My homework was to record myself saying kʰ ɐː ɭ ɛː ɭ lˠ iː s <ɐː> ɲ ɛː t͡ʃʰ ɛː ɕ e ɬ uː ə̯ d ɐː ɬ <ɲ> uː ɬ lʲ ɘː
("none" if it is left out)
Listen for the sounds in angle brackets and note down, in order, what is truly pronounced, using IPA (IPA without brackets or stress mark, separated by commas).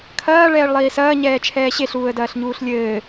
ɐː, ɲ